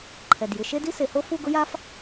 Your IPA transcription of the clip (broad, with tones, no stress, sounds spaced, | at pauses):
ǃʰ ɛ˨˩ d j ɪ˧˥˧ ʃ e˥ d i˥ s e˨˦ h o˥ f u˥˧ ɡ ʊ˥ j a˥ f